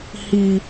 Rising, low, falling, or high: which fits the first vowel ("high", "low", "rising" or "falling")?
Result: low